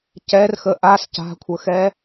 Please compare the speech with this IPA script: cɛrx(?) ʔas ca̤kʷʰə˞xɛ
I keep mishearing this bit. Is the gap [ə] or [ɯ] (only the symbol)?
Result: ə